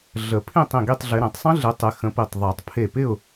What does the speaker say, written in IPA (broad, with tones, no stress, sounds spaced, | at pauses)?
ɮ ə˨˩˦ pʰ ĩ˥˨ tˤ ĩ˧˩ ɡ i˥˨ tˤ ɮ ɪ˨˦ ɾ ẽ˨˩˦ tˤ sˤ ə̃˦˥ ɮ ɪ˨˦ tˤ ɪ˨˦ x ə̃˨˦ p i˧˩ tˤ ðˤ e˨˩˦ tˤ pʰ e˧˩ p ɪ˥˨ ʊ̯